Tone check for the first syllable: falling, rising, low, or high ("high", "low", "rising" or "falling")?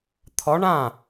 rising